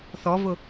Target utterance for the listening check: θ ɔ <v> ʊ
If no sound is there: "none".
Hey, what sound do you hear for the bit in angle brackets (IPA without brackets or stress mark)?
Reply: v